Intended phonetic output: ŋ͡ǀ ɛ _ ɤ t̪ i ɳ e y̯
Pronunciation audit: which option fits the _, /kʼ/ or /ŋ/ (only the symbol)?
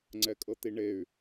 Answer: kʼ